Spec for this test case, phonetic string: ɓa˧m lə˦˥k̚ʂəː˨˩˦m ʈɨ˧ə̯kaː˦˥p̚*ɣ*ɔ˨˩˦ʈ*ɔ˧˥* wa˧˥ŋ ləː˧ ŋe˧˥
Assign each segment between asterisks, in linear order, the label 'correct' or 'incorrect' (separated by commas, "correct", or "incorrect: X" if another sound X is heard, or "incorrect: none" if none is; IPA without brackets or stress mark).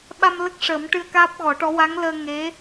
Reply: correct, correct